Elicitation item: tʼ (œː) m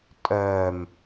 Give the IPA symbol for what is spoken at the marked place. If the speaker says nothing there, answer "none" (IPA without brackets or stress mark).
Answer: œː